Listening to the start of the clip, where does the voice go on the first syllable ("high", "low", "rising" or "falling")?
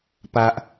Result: high